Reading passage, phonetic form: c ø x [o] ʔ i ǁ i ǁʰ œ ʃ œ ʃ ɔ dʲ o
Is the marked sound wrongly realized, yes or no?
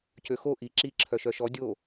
no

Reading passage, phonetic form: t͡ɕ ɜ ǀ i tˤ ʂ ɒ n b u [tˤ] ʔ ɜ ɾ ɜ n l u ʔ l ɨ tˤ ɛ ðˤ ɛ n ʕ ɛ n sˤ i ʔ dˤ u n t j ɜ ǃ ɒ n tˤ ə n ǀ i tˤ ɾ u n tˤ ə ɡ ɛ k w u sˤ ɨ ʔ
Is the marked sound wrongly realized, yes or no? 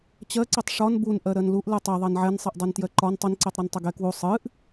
yes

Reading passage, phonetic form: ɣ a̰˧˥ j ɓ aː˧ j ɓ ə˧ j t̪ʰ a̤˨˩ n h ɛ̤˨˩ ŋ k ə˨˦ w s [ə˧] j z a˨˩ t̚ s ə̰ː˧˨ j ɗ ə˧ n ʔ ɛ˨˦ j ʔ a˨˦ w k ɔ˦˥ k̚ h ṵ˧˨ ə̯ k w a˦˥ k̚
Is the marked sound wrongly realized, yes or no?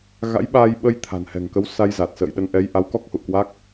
yes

